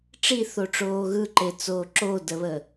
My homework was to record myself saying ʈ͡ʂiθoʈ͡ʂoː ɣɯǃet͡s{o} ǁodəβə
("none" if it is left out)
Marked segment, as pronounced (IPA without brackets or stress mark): oː